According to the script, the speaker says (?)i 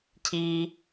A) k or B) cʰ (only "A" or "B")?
B